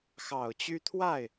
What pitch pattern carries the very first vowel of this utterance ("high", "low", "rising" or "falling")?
low